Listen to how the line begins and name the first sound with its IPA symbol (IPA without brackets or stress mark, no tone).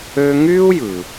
ø